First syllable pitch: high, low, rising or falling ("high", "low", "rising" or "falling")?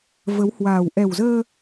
rising